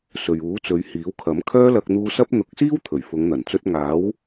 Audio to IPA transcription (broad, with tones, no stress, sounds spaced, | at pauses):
s ɵ˨ ɥ uː˨˥ t͡s ɵ˨˧ ɥ h iː˨˥ w kʰ ɐ˨˥ m kʰ œː˥ l ɐ˧ k̚ n̪ uː˧ s ɐ˥ p̚ n̪ ʊ˨˥ k̚ s iː˥ w t̪ʰ ɵ˨˩ ɥ f ʊ˨˧ ŋ n̪ ɐ˨˩ n t͡s ɵ˧ t̚ ŋ aː˨˥ w